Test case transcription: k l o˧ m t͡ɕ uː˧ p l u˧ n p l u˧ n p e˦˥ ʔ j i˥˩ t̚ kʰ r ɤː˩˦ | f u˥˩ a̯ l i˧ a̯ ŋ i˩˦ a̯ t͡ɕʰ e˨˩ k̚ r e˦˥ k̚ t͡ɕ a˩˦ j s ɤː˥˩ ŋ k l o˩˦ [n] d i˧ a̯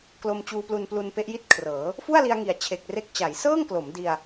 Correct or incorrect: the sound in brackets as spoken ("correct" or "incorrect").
incorrect